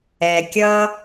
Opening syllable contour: low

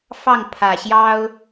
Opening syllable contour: falling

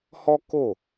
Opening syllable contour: high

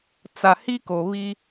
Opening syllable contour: low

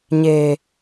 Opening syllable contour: low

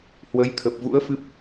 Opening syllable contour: rising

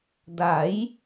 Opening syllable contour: rising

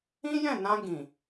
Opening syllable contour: high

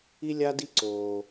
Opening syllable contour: high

